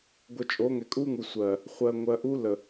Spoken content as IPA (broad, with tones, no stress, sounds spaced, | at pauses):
ɡʷ ə˨ t͡ʃʼ o˨˦ ŋ ɛ˨ kʼ u˦ ŋ u˨ sʷ ɜ˨ | χʷ ɜ˨ ŋʷ ɜ˨ ʔ u˦ l ə˨